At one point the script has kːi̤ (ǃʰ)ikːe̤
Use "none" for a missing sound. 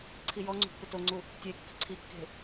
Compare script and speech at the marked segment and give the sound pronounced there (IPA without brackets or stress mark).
ǀʰ